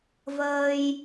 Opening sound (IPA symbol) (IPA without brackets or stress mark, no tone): v